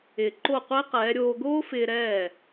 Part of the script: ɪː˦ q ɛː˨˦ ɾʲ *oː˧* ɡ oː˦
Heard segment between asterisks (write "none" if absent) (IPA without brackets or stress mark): oː˧